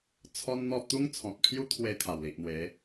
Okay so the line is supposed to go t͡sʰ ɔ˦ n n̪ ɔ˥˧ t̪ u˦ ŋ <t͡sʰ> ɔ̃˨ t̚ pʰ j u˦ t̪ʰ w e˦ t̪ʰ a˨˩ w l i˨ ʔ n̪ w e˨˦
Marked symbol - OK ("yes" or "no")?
yes